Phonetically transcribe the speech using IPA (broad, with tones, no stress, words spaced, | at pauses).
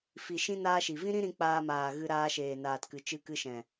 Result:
fi˨ʃĩ˦ naː˦ʃi˨ vĩ˦ɾĩ˦ɾĩ˧ k͡paː˧maː˨ɣɨ˧ ɾaː˧ʃeː˨naː˨tkɨ˨ t͡ʃɨ˧kɨ˧ ʃɛ̃˨